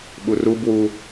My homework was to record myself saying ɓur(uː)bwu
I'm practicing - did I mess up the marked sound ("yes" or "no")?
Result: yes